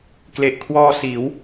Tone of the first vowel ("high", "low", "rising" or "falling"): low